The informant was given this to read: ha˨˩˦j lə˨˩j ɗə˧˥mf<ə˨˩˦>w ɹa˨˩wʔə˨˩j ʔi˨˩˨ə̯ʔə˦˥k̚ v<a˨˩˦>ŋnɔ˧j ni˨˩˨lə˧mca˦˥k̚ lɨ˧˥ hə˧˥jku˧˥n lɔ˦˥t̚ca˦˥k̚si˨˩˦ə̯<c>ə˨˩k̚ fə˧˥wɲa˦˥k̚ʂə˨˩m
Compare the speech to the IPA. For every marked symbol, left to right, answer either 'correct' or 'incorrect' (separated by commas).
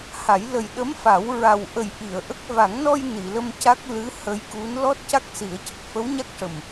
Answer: incorrect, correct, correct